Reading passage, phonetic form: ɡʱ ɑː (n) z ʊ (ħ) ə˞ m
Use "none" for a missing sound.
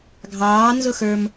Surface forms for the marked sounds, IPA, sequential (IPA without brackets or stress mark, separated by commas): n, x